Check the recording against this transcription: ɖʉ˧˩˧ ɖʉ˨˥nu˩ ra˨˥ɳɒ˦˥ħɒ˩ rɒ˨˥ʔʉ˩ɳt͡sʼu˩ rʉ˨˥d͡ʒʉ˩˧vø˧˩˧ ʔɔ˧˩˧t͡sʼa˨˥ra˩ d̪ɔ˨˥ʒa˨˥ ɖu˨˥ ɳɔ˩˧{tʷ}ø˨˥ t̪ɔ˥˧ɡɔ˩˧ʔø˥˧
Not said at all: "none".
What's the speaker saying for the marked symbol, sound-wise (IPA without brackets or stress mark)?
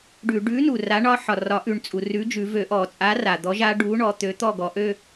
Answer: t̪